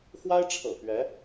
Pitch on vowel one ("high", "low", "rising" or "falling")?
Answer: high